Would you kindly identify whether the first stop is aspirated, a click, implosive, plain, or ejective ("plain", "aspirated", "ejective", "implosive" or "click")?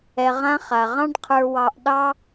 plain